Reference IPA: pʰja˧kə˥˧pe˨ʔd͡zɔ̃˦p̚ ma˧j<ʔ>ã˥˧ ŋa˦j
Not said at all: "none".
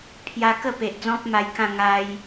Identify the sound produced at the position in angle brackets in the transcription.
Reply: k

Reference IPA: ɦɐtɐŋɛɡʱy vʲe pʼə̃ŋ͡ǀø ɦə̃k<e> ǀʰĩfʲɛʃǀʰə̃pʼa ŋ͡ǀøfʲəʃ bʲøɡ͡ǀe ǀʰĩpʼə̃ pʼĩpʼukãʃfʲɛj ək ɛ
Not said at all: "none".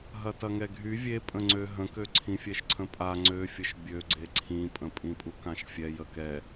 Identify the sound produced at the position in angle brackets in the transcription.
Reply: ø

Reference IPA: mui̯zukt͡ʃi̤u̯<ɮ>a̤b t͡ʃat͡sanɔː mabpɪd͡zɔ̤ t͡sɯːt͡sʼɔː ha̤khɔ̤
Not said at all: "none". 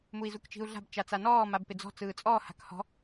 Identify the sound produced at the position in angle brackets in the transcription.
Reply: ɮ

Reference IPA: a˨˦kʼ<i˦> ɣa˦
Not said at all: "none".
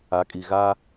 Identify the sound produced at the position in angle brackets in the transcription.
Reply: i˨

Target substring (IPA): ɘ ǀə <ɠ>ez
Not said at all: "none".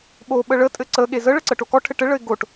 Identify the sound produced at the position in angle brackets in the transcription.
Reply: ɠ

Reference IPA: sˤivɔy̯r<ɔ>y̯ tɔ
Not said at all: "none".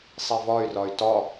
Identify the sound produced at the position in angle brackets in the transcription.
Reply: ɔ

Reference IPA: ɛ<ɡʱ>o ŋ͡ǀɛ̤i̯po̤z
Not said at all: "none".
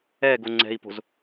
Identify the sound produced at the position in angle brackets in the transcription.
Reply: ɡ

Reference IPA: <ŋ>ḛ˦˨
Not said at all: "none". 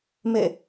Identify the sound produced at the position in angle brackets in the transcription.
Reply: m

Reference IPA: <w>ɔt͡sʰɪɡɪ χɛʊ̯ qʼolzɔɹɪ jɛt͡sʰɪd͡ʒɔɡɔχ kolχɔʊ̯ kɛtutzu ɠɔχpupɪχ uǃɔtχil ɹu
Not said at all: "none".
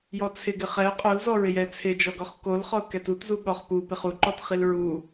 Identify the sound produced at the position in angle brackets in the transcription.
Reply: j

